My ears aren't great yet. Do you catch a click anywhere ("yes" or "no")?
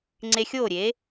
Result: yes